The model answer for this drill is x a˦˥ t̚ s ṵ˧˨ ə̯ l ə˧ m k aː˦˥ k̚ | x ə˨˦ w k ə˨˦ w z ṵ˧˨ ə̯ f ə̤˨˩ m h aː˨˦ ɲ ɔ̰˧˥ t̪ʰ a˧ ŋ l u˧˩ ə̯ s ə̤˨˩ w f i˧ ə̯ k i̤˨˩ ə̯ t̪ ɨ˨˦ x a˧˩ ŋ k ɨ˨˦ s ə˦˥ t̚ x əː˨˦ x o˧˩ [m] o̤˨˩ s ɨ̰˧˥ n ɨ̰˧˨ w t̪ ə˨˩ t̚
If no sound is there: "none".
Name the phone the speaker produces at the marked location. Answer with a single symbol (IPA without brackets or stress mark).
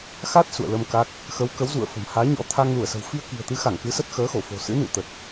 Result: f